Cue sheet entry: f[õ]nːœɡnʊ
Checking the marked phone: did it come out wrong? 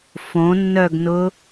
no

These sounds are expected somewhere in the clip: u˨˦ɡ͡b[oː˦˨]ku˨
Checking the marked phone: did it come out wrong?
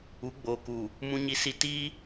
yes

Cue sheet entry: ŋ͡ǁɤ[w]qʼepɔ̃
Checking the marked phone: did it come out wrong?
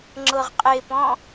yes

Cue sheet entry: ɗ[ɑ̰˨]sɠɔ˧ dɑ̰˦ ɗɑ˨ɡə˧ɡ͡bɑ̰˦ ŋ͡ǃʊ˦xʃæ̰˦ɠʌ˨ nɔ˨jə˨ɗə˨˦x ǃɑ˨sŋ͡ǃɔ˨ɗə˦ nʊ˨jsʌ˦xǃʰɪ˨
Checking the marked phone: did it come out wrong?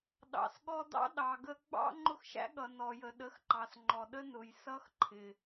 no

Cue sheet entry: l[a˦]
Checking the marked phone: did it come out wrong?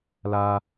no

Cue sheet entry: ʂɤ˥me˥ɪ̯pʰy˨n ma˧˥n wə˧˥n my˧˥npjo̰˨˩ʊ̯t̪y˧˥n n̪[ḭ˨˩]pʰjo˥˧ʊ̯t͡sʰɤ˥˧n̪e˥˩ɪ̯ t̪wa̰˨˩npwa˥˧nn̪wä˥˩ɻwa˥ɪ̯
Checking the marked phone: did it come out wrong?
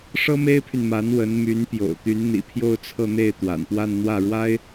no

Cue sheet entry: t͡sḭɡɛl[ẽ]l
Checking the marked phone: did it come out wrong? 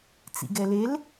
yes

